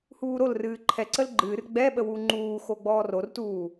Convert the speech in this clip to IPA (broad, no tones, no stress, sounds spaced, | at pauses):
h uː ɾ o l r ɨː ǃʰ ɛ ǀ ə l ɡ͡ǃ ɨː r ɡ͡b ɛ ɓ ə w u ŋ͡ǃ uː x o ɡ͡b ɔː r o r t uː